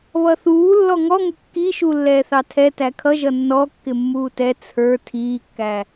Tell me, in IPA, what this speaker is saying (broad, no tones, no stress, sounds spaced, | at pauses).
β ʌ θ uː lː ɔ ŋ ɔ ŋ ʊ kː i ʃ u lː ɛː θ ɑ tʰ ɛ t æ kʰ ʌ ʒ ʌ nː ɔ kː ɪ mː uː t ɛ t͡sʰ ə˞ tʰ iː kː æ